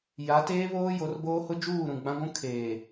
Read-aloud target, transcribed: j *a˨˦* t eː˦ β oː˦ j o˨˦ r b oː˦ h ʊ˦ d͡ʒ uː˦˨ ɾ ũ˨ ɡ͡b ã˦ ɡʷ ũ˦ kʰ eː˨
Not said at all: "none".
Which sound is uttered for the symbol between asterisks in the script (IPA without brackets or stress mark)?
a˨˦